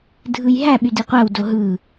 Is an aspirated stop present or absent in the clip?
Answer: absent